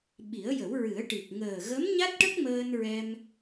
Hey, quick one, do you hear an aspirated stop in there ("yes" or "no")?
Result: no